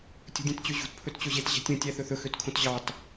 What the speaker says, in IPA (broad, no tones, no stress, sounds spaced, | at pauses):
tʲ ṳ dʲ ẽ t t͡ɕ ø ʑ ṳ t pʰ ɵ t t͡ɕ ɵ ʑ e t ʑ ɛ̤ tʲ ũ tʲ æ θ ɵ θ ɵ x ø t kʰ õ t ʑ ɑ t